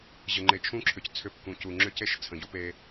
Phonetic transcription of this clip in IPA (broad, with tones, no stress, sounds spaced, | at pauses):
ʑ ə˨ ŋ͡ǃ e˨ t͡ʃʰ ũ˦ ǁʰ ʏ˨ c t͡sʰ ʏ˦˨ p k ũ˨ c u˨ ŋ͡ǁ ʏ˦ c e˦ ʃ t͡sʰ ə̃˨ ɟ u˦ p e˦